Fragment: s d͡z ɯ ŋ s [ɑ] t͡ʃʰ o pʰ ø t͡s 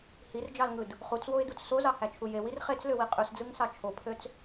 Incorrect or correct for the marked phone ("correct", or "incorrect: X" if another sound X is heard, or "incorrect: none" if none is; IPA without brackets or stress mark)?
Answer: correct